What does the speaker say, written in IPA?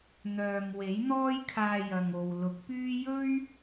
n̪ œː˨ m w e˨˥ j n̪ ɔː˥ j kʰ aː˧ j ɐ˨ ŋ o˨ w l ʊ˨˥ k̚ p yː˥ j ɵ˥ ɥ

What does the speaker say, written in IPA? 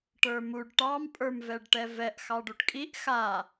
ʈ ə˞ m u ɖ ʈ ɑ m pʼ ə˞ m v ɛ ɖ ʈ ɛ v ɛ ʔ x ɑ ɖ u ʈ kʼ i ʔ x a

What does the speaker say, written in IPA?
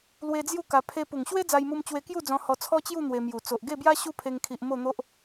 l w e˧ d͡z j u˥˧ k a˧ pʰ e˧ p u˨˩ ŋ ɕ w e˦ d͡z a˧ j m u˧ m t͡ɕ w e˧ k j u˥˧ d͡z ɔ̃˧ h ɔ˧ t͡sʰ ɔ˦ t͡ɕ j u˥˧ n̪ w e˧ m j u˨˩ t͡s o˨ ʔ ɡ e˥˧ b j a˦ ɕ u˦ pʰ e˧ ŋ kʰ i˨ ʔ m o˥˧ n̪ o˦ ʔ

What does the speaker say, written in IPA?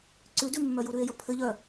ǀ ʉ d ʉ mː œ j u ɾ ʉ e̯ j ə pʰ ɘ ʎ œ

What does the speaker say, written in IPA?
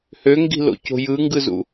h ø ŋ ɡ i̤ l o̰ c o̤ j ɯ ŋ ɡ ɯ z ṵ

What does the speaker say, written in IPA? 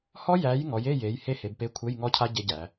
h ɔ˦˥ j æ˨˦ j ŋ ɔ˨˦ j e˧˥˧ j e˨˦ j h e˦˥ h e˨˦ b p e˧˥˧ kʷʰ e˧˥˧ j ŋ ɔ˦˥ cʰ a˦˥ ɟ e˦˥ ɟ æ˨˦

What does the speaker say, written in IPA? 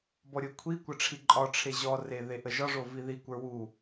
b ɔ ɾʲ o kʷʰ i kʷ ə ʈ͡ʂʰ i ǃʼ ɒ ʈ͡ʂʰ e ʑ ɔ r e ð e ʔ ə ʒ ɒ ʐ o v i ð i kʷ ə˞ w u

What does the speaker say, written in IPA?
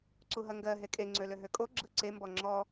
ǀ u ɦ ɐ ŋ ɡ ɜ ɦ e kʼ e ŋ͡ǀ ø l ø ɦ ø kʼ o ɡ͡ǁ ɯ ǀ e m b ɔ ŋ͡ǁ ɔ

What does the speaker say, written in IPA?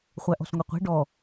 χʷ æ ʔ ɔ̤ s ŋʷ e qʷ e̤ ɖ ɔ

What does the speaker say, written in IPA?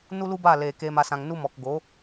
n u˦ l u˦ b aː˦˨ l eː˨ k eː˧ m a˧ s ã˨ ŋ n u˦ m ɔ˨ k ɡ o˨˦

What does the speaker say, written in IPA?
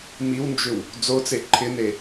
m i w n d͡ʒ ʏ w | d͡z o t͡s e ǃʰ ɪ n e

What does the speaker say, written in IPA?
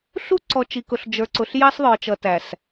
ɬ u˦ ǀ ɔ˨ t͡ʃ i˨ k ʊ˨ ɬ d͡ʒ ə˞˨ ǀ ʊ˨ ɬ j ɑ˦ s ðˤ ə˞˨ t͡ʃ ʌ˨ t æ˨ s

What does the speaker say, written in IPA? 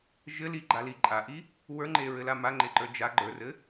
ʒ ɘ l i ɡ͡ǃ a l i ǃʼ a ʔ i | w ə˞ ŋ͡ǃ e ɹ ɘ l a m a ŋ͡ǃ e ǃ ə˞ d͡ʒ a ɡ͡ǃ ə˞ r ɘ

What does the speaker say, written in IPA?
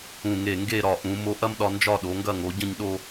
ũ˧˩ ŋ e˧˩ ŋ ɡ e˥˧ ɾ ɒ˧˩ ʔ ũ˩˧ m o˧ ʔ ɐ˥ m ɗ ɒ˧ n d͡ʒ ɒ˥˧ ɗ o˩˧ ŋ ɡ ɐ˥˧ ŋ o˩˧ ɟ ə̃˥˧ ɲ ɗ o˥˧

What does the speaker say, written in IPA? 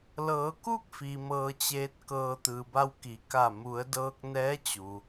l ɤː˩˧ k u˥˨ k̚ f i˩ m ɤː˧ t͡ɕ eː˧˥ t̚ k ɤː˧ t̪ ɯː˩ b a˧ w k i˩˧ k a˧˩ m u˩˧ ə̯ d ɤː˧ k̚ n ɛː˧˥ t͡ɕ u˩

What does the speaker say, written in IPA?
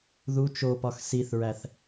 ð u t͡ʃ o p ɒ x s i θ ɹ æ θ

